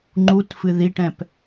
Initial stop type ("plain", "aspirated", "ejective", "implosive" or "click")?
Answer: click